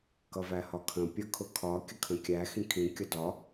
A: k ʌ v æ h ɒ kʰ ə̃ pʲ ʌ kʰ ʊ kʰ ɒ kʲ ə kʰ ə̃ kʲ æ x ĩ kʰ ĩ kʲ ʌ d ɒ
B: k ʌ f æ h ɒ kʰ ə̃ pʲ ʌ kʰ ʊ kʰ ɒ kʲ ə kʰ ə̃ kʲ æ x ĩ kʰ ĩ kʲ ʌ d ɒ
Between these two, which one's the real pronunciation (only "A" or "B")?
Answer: A